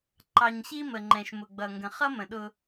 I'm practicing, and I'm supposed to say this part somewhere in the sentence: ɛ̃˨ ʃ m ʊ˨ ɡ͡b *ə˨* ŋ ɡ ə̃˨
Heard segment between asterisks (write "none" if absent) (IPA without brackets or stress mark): ʌ˨